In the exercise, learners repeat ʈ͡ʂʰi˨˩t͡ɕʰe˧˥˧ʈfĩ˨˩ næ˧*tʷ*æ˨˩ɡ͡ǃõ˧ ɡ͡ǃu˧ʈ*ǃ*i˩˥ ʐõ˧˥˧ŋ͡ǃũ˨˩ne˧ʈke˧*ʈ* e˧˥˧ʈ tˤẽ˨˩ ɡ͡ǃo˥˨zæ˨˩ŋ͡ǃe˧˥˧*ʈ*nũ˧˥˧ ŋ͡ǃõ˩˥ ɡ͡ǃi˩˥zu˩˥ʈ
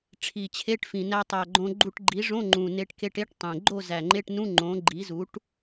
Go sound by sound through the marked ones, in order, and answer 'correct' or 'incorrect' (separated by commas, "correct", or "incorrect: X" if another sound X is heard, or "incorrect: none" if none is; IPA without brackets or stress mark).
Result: incorrect: tˤ, incorrect: ɡ͡ǃ, correct, correct